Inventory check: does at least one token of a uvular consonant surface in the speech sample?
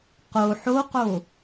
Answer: yes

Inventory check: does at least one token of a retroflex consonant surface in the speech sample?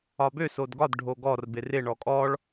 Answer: yes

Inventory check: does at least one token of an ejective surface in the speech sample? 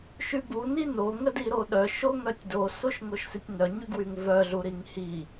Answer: no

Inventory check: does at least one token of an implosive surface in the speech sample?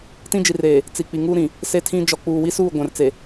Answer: no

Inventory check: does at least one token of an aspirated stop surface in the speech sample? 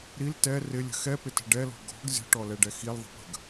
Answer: no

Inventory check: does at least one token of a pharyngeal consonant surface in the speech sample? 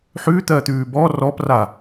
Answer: yes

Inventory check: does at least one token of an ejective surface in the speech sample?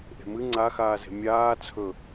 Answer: no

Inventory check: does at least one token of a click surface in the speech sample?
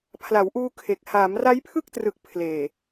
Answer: no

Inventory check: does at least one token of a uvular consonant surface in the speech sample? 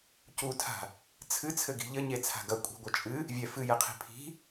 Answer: yes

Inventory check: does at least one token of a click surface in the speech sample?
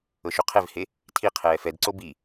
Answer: yes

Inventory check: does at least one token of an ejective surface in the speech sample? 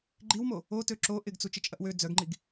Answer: yes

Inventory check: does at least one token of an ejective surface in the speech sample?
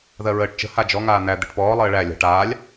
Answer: no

